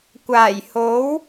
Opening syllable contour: low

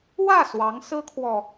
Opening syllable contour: falling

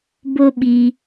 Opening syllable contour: high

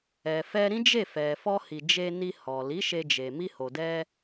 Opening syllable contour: low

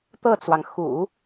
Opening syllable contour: falling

